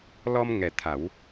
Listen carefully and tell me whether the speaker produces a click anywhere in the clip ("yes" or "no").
no